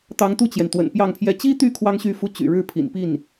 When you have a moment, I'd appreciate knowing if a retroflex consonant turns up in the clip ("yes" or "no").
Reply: yes